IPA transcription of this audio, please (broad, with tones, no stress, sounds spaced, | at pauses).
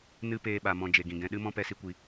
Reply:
n ɨ˧ p eː˧ ɓ a˨ m ɔ̃˨ d͡ʒ e˨ ɡ ĩ˨ ɡ ɛ̃˧ ɗ ɨ˦ m ɔ̃˦ p ɛ˧ s i˧ kʷ i˧